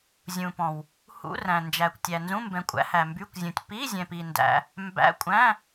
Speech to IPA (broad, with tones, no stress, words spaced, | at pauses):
zʲũ˨pɔ̃˨w | hṵ˧˥˧ræ̃˨nd͡ʒæ˨kʷ tʲæ˨nzũ˧˥˧ mbɛ̃˨kʷʼæ̰˧˥˧ hæ˨mby˧˥˧kʷzʲũ˨tʲ pi˧˥˧zʲɛ̃˨pi˨ ndæ̰˧˥˧ | mbæ̰˧˥˧kʷʼæ̃˧˥˧